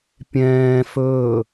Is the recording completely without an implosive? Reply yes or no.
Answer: yes